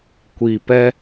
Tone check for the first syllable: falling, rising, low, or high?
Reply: low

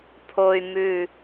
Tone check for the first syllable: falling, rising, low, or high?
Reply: high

